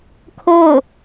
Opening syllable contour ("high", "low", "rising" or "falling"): falling